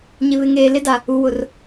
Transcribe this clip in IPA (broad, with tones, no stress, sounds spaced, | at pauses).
ɲ ɪ˨ β ɪ˨ ŋ eː˨ l ɪ˦ d a˨ | u˨ w ʊ˨ r